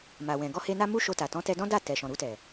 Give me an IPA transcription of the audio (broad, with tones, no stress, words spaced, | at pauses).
ma˨wɛ̃˨ ɡɔ˧he˧na˦ mu˦ʃo˧ta˨ tɔ̃˨˦tɛ˧dɔ̃˦ da˦˨tɛ˨ʃɔ̃˨ ɾu˧tɛ˨